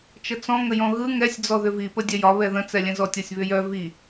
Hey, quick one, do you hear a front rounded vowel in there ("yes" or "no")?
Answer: yes